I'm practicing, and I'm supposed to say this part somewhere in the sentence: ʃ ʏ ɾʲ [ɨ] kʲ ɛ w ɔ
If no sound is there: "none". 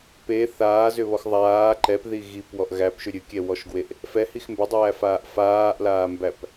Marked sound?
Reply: ɨ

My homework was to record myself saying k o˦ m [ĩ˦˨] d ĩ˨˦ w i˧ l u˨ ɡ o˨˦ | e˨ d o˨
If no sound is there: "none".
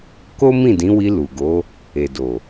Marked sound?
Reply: ĩ˦˨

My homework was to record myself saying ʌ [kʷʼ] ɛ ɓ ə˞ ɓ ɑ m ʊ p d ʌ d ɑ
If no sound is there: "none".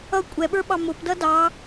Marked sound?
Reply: kʷʼ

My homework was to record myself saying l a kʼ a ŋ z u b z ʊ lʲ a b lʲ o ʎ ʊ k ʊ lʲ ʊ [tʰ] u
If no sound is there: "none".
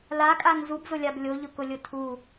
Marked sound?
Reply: tʰ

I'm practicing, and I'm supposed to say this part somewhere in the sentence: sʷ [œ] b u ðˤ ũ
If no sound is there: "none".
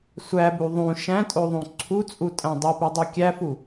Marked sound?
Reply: æ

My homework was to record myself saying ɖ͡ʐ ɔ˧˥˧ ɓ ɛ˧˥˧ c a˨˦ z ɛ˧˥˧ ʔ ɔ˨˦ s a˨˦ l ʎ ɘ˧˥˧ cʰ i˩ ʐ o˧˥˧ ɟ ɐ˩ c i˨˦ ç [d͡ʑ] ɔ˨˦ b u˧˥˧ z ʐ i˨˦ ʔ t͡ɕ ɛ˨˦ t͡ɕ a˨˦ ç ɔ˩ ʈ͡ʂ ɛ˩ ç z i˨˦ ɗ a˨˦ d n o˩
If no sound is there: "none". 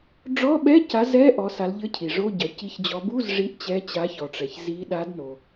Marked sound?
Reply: d͡ʑ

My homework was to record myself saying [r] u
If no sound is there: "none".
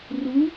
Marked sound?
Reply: r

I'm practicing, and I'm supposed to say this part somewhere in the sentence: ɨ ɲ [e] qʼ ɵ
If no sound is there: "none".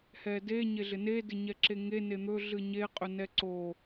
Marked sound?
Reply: e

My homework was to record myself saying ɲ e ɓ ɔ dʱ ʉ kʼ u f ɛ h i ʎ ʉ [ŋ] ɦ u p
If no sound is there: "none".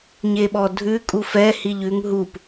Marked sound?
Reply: ŋ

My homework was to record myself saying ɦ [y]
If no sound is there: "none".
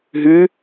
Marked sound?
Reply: y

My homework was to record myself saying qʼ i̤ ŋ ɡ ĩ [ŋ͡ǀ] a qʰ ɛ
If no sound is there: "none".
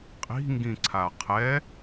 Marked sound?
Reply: ǀʰ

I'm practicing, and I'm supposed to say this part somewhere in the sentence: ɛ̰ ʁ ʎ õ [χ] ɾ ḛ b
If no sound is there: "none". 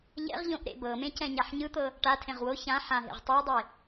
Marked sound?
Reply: ʔ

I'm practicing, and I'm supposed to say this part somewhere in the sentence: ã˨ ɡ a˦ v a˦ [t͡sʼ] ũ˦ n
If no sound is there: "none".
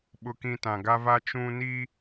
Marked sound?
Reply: t͡ʃ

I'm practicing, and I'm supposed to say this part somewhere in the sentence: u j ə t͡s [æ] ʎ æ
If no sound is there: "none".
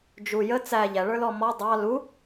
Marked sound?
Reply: æ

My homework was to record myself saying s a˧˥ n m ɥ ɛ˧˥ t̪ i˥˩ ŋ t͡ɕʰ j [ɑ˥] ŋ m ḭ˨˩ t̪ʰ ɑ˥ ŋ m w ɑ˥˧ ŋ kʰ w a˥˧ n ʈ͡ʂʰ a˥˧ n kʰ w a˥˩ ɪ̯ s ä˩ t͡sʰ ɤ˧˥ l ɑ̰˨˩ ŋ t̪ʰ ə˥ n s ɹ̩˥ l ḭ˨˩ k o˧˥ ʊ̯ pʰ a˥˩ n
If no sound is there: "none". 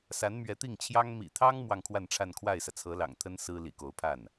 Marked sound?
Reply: ɑ˥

